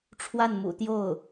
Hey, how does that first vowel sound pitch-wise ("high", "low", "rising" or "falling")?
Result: falling